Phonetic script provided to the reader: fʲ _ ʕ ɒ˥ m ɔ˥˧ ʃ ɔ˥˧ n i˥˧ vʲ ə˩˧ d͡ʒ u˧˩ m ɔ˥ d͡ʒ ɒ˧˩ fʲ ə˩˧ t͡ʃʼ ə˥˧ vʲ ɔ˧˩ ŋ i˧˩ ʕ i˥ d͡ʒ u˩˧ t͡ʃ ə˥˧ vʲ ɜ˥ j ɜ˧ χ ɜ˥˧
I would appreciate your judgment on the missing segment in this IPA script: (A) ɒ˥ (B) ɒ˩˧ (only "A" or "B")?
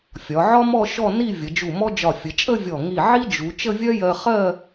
B